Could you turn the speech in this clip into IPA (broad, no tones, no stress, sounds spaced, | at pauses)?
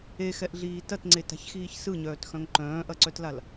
e x ɛ ʔ ɮ iː t ɐ t ŋ͡ǀ e t a̤ ç x iː ç s ɯ ɲ œː t x œ̃ ŋ ǃ œ̃ː ʔ ɐ ǀ œ t l a l